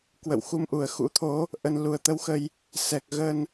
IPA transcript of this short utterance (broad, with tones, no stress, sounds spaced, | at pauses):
k w ə̰˧˨ w x u˧ m ʔ u˨˩ ə̯ x ṵ˧˥ t̪ʰ o˨˦ | ʔ ə˨˩ n l u˨˩ ə̯ t̪ ə˧ w x ə˧ j | s ɛ˨˩ k̚ ɣ ə˧ n